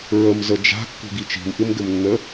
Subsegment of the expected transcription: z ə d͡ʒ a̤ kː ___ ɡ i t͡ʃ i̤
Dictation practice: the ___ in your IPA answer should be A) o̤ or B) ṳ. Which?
B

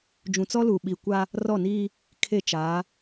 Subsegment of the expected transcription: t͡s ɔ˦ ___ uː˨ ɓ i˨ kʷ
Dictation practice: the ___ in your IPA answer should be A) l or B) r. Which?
A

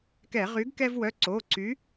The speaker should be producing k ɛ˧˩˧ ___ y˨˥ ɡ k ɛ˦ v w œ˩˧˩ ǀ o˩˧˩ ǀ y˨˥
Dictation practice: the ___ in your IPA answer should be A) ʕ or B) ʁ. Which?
B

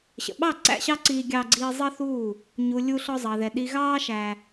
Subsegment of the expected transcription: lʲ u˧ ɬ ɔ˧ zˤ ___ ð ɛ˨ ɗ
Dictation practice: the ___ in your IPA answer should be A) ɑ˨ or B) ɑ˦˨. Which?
A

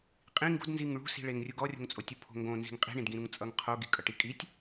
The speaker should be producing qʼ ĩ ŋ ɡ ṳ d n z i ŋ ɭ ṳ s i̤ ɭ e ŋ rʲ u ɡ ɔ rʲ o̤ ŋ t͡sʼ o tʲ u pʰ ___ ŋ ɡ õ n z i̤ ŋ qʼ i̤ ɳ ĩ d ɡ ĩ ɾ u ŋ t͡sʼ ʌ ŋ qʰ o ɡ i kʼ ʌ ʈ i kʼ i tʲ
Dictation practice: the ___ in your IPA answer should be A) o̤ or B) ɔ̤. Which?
A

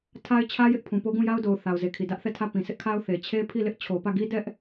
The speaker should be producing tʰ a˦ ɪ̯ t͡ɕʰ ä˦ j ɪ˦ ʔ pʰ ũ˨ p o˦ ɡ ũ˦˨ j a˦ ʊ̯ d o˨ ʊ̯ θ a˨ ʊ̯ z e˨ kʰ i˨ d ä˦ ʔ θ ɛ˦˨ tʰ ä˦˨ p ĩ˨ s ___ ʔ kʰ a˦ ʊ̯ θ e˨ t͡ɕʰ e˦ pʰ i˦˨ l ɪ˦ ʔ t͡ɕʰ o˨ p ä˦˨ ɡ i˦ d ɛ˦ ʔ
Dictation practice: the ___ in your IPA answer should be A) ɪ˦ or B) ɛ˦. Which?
A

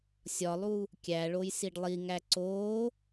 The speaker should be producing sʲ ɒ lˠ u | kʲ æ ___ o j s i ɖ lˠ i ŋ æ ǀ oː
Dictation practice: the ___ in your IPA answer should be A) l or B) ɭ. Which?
B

